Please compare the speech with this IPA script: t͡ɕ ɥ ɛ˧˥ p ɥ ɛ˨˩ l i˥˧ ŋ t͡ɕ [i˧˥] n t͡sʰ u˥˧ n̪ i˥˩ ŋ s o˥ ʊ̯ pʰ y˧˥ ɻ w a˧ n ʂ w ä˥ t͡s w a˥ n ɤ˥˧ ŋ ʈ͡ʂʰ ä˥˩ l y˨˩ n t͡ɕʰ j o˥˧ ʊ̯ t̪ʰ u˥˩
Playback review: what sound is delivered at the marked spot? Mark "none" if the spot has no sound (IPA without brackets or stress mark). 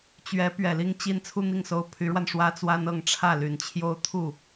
i˥˧